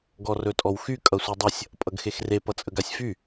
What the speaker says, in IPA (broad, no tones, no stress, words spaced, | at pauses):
ɡɔrɵtʼɔwxy kʼʌsʷidˤʌsʲ | pʼʌɡxexre pʌt͡sʼəɡasʲfy